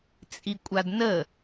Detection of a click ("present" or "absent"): absent